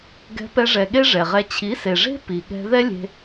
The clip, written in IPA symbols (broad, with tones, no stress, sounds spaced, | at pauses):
ɡ ɛ̤˧ p ɛ˧ ʐ ɛ˨ ɠ e˦ ʐ ɛ˨ ʁ ɛ˧ t͡ɕʰ i˨˦ s e˨ ʐ e̤˦ p i˨ ɠ ɛ̤˧ ð ɛ˦ lʲ e̤˧